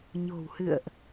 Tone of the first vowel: low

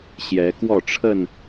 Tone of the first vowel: rising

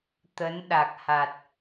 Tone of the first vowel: rising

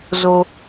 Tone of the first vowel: high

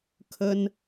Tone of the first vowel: high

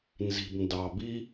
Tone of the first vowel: low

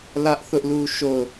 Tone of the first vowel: high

